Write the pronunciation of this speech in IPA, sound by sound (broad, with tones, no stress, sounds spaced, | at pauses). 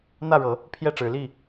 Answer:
n̪ ä˥˨ ɻ ɤ˨˦ | pʰ j ɛ˥˨ ʈ͡ʂ ɻ̩˨˦ l i˥˨